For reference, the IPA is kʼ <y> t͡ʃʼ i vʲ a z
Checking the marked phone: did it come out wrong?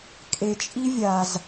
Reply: yes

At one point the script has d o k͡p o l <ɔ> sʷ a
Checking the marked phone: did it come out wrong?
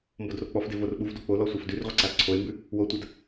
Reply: no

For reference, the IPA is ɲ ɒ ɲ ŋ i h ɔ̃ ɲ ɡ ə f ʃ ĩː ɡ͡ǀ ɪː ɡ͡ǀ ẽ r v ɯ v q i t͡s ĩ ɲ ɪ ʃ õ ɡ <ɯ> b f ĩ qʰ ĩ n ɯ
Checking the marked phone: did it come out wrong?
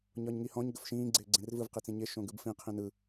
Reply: no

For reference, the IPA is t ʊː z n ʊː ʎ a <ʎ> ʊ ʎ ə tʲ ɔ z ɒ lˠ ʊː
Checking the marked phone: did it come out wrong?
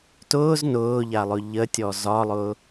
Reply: yes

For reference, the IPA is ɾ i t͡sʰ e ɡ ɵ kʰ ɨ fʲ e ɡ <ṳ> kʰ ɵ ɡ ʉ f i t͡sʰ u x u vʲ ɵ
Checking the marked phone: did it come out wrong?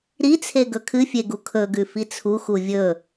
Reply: yes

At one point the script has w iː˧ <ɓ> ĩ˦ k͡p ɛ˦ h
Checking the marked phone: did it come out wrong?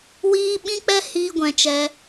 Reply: no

